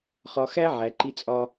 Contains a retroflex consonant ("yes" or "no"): no